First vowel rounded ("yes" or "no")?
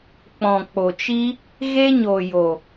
yes